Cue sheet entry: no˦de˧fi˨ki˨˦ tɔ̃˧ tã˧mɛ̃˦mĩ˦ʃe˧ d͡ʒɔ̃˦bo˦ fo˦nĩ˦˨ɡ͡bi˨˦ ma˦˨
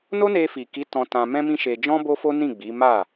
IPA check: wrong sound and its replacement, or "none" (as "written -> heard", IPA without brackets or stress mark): d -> n